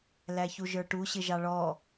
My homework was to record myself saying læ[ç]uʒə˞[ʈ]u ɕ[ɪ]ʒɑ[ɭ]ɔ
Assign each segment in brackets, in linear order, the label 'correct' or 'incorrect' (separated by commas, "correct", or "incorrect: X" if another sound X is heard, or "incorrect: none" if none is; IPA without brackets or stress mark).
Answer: correct, correct, correct, correct